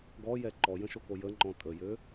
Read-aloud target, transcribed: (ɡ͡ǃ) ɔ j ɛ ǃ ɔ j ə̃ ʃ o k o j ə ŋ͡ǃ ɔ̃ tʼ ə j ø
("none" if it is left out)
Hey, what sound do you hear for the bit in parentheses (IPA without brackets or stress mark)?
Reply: ɡ